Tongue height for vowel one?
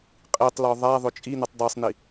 high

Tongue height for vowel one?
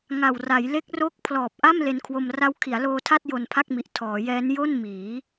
low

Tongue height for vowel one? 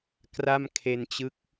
low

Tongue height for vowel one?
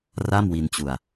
low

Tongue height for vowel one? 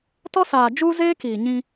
mid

